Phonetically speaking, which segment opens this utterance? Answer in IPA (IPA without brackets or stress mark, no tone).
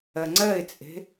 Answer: ɜ